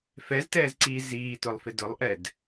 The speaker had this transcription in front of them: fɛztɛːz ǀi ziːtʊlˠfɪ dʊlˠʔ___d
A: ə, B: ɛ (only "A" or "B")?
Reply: B